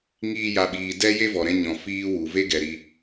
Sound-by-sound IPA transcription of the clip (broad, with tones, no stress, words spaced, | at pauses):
ŋiː˦ja˧ɓiː˧ dɛ˦ je˦vɔ˨ɾɛ̃˧ ɲɔ̃˨ fiː˧wu˨ ve˦ɡɛ˨ɾi˧